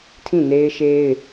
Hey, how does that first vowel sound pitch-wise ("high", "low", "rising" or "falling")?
falling